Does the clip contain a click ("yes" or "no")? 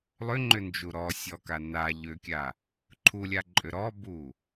yes